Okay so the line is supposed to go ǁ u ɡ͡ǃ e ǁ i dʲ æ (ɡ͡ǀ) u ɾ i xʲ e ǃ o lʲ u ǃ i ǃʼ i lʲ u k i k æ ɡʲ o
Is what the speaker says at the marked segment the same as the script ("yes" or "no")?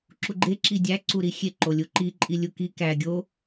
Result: no